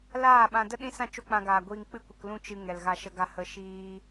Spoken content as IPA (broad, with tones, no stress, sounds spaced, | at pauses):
l aː˦˨ ɓ ã˧ d ə˦ ɗ ĩ˦ s ã˦˨ t͡ʃ o˦ k͡p ã˧ ɡ aː˨ ɡʷ iː˧ ŋ k͡p ɨ˦ kʷ ə˧ k l ũ˦ t͡ʃ ɨ˧ ŋ ɛ˨ l ɣ a˧ ʃ ə˧ ɡ a˧ h ə˧ ʃ iː˦